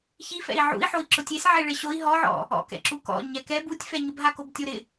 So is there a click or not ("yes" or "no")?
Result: yes